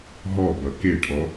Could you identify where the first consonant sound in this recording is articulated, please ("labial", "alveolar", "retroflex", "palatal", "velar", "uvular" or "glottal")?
glottal